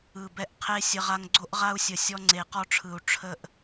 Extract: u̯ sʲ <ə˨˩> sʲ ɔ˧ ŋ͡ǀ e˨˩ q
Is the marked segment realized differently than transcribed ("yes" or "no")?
no